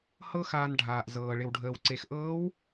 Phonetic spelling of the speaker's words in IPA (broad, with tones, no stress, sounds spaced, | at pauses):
h ɤ˥ x aː˧ n ɖʱ aː˩ ʔ z ɤː˩ ɭ ɪ˩ w ɖʱ əː˩ w ǀ e˩ x ʔ ɤː˧˥ w